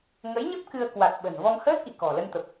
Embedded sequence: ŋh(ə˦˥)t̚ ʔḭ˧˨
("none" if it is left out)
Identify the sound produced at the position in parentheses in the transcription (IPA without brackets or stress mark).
əː˦˥